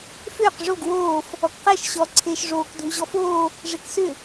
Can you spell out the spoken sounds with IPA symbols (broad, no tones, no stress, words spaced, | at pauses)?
fʏːq ʐoɡ woːf | ɔkqɛʃ ɕɔ ǀʰeːʃʐoːk dʱuʑɔfoː | ʐeksʏ